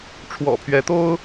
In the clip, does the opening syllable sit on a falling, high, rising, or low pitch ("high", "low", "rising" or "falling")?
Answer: low